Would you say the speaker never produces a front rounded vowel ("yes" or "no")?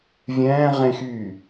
no